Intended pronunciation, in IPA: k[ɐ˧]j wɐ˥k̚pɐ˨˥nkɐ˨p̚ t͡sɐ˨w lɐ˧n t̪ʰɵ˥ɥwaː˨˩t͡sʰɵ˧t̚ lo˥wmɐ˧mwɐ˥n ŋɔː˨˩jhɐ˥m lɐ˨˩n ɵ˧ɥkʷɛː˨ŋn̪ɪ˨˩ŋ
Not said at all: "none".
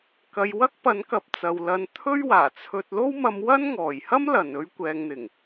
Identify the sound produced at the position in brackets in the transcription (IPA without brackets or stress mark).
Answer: ɐ˧